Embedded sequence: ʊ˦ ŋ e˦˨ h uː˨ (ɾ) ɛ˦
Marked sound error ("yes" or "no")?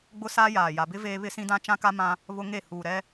no